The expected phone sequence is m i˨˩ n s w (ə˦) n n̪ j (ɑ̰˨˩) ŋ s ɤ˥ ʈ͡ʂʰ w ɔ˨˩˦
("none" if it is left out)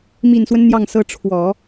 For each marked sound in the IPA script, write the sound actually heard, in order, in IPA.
ə˦, ɑ˥˩

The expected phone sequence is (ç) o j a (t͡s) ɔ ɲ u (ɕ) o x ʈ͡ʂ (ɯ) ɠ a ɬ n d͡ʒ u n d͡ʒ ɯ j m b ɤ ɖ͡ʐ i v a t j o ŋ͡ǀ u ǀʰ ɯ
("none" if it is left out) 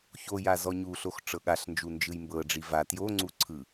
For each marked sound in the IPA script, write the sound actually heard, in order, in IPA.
ç, z, ɬ, ɤ

